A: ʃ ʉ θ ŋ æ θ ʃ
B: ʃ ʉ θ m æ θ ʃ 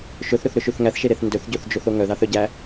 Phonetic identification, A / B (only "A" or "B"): A